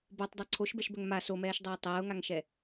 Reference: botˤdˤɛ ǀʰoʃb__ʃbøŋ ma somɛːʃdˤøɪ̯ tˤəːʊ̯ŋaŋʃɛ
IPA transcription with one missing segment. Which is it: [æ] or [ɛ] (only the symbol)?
ɛ